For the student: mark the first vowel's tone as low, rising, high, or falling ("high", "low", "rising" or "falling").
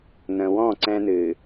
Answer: low